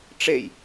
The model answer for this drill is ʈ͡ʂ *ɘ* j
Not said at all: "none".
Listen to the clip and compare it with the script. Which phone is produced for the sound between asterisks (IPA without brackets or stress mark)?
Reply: e